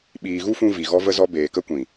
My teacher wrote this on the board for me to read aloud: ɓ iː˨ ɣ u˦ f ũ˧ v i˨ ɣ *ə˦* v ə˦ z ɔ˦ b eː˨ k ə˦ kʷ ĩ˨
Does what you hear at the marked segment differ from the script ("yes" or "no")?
yes